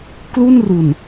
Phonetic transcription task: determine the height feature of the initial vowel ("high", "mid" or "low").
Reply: high